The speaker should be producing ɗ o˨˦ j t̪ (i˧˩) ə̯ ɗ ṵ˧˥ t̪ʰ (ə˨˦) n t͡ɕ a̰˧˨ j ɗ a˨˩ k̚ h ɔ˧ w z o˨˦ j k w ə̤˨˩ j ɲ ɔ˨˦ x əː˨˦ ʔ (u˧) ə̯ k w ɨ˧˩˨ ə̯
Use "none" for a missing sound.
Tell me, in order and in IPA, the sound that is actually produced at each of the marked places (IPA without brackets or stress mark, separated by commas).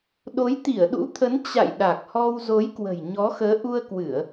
i˧˩, ə˨˦, u˧